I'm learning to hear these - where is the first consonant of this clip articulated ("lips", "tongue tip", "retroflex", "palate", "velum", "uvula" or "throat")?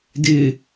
tongue tip